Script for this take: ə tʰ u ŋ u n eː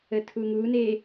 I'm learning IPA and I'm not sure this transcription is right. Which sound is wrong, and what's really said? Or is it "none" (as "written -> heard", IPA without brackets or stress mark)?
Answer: none